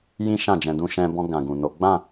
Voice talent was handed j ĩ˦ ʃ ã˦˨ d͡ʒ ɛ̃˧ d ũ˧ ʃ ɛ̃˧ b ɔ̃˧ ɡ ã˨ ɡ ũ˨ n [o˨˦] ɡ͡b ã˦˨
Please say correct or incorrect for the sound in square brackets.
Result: correct